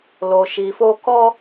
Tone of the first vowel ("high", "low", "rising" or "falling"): low